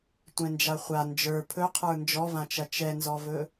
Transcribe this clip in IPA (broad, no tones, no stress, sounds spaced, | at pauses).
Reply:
tʷ ɛ̃ n d͡ʒ a χʷ a n d͡ʒ ə˞ pʰ ɵ qʰ ə˞ n d͡ʒ ɔ v ã t͡ʃ ɐ t͡ʃ ɛ n z ɔ v ɵ